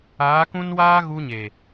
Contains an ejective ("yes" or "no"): no